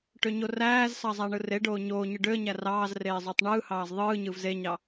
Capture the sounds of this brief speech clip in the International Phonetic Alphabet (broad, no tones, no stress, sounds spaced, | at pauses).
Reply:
ʈ ø ɲ o r æː z s ɑ zˤ æ ɳ ɯ r e ɖ oː ɲ oː ɲ ɯ ɖ ø ə̯ ɲ æ r ɑː z r eː zˤ ø tˤ ɳ ɯː h ɑː z ðˤ ɯː ɲ ɯ v z e ɲ ɑ